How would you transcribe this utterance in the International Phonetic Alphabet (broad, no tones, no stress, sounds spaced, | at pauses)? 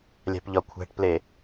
lʲ æ̤ p ʎ ɒ kʷʰ æ̤ ʈ p l e